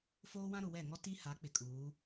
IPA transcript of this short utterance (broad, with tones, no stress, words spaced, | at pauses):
foː˦wã˦ɾʊ˨ wɛ˦˨ŋɔ˦ ti˦ha˨˦ k͡pɪ˨kʼuː˨˦